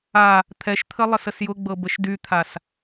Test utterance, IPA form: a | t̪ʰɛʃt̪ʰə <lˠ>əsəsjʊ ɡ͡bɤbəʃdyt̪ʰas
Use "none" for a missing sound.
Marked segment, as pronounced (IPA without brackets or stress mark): lˠ